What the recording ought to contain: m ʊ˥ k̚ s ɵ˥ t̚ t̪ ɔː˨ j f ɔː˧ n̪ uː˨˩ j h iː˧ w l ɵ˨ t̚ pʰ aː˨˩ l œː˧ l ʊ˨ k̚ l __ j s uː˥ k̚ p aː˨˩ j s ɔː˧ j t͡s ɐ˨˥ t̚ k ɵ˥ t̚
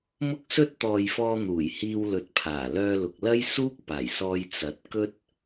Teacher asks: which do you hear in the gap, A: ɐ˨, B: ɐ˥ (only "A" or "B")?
B